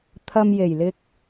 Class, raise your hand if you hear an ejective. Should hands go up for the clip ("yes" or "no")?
no